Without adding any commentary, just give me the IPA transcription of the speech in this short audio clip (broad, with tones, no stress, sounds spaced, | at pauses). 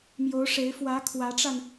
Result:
m j o˧˥ ʊ̯ ʂ e˧˥ ɪ̯ f w ä˧˥ kʰ w ä˧˥ ʈ͡ʂ a˧ n